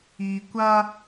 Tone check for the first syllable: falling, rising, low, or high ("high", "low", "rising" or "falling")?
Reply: low